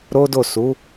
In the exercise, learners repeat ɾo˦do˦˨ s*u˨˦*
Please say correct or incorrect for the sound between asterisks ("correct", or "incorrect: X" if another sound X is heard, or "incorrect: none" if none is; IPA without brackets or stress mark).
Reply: correct